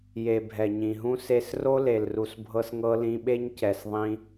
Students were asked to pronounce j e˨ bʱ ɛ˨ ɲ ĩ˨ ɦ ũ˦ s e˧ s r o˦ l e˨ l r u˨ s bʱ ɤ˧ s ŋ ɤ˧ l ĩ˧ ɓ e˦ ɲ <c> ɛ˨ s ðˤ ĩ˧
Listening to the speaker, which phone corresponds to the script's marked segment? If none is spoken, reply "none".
c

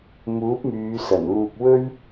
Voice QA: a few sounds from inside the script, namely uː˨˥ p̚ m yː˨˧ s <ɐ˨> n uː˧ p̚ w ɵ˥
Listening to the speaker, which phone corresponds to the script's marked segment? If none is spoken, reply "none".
ɐ˨˩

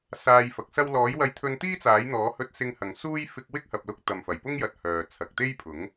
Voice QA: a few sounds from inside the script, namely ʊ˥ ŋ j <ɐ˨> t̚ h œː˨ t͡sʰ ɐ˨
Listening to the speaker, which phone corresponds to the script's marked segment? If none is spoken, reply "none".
ɐ˨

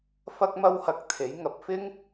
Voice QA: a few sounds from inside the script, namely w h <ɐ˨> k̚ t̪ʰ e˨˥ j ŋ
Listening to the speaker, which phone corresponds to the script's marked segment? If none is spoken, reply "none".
ɐ˧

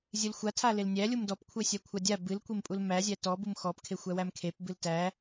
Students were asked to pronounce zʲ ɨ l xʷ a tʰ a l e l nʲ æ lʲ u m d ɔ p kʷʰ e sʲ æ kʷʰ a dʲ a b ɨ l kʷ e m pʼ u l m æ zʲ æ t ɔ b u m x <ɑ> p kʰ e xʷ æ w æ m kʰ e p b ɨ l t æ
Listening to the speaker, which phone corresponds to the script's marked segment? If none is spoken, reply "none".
ɔ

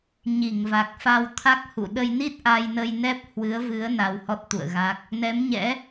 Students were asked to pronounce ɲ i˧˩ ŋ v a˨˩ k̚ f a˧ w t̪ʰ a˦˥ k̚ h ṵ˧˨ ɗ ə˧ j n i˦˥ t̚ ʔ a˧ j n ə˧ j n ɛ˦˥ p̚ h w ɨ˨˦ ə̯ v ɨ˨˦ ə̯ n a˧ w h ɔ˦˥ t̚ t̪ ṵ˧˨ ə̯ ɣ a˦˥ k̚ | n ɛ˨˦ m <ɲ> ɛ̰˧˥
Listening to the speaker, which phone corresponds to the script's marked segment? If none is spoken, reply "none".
ɲ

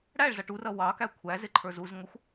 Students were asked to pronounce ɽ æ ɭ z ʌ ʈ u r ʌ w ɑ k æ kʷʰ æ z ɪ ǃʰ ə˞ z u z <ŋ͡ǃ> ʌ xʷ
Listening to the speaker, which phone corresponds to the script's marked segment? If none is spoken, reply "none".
ŋ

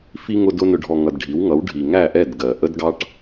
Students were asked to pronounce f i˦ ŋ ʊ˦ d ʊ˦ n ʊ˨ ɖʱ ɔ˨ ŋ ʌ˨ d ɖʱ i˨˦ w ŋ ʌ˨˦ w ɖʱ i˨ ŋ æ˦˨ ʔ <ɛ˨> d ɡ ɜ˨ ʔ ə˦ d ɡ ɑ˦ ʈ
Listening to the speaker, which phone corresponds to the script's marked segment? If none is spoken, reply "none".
ɛ˦˨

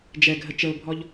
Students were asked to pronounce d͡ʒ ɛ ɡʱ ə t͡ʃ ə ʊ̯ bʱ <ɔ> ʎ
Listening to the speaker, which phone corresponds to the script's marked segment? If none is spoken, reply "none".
ɔ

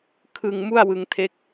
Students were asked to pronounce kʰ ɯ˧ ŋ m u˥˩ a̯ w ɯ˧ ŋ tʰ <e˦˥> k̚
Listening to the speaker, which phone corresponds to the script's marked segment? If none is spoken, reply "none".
e˦˥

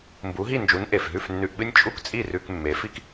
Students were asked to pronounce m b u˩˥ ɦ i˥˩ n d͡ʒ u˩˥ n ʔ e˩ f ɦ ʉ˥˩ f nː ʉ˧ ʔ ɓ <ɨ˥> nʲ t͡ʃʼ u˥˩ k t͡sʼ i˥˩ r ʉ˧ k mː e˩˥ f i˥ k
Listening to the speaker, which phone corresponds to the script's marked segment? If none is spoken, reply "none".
ɨ˥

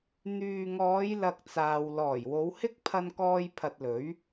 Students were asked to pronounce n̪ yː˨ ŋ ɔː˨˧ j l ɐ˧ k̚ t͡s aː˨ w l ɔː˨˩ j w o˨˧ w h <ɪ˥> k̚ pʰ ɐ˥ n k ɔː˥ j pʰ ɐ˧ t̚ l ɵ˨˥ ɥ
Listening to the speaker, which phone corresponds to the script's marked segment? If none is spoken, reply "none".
ɪ˥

